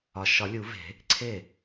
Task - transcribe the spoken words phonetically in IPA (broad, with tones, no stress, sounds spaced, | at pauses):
ɒ˨ ʃ ɒ˨˩˦ lʲ u˨˩˦ v e̤˨˩˦ | ǀʰ e˥˩